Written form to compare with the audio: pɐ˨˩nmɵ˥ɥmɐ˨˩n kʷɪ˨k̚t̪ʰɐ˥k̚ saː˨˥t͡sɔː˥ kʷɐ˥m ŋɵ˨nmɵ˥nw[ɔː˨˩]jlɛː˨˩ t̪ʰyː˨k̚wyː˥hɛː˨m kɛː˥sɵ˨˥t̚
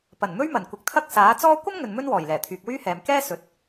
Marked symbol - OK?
yes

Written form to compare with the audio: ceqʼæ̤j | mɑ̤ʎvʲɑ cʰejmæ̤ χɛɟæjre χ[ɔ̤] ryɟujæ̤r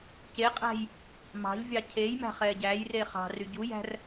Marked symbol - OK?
no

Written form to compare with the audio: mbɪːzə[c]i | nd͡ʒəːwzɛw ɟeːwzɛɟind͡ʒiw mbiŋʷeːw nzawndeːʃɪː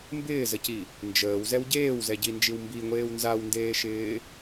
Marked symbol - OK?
yes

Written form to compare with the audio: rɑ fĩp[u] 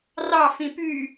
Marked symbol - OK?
no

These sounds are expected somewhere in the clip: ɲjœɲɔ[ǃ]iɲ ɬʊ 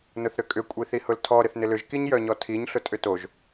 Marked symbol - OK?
no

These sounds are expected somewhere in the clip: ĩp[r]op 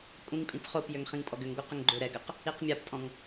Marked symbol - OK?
no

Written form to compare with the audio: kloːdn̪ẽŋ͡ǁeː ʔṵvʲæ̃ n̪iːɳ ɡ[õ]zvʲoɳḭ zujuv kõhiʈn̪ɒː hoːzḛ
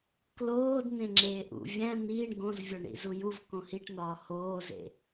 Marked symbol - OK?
yes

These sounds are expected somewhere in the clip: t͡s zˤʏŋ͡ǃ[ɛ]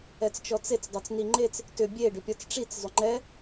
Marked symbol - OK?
yes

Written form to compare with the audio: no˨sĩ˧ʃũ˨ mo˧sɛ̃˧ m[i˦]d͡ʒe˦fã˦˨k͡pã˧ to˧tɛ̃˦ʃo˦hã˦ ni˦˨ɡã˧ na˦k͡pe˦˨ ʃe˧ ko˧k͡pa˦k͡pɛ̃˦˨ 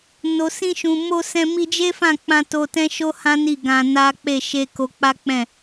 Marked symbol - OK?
no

